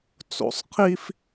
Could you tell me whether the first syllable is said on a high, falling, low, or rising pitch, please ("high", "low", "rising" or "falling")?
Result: low